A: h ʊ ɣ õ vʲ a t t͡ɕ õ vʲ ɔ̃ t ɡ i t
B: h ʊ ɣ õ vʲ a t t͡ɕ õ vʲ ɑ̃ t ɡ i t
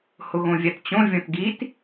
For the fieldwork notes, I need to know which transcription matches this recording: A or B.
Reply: A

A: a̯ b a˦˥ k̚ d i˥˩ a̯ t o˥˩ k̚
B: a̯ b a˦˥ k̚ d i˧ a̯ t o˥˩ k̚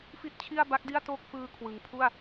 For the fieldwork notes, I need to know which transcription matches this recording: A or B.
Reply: A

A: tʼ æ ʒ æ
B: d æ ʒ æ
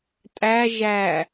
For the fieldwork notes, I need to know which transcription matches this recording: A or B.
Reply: A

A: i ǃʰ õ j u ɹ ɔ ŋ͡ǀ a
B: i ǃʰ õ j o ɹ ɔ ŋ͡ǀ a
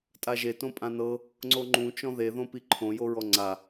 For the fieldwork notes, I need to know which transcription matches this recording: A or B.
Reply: B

